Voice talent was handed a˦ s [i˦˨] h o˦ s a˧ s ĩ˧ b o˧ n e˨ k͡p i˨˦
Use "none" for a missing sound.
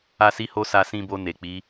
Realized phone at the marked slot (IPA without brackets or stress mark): i˦